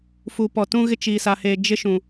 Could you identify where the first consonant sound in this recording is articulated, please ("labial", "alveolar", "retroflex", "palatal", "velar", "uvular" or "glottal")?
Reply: labial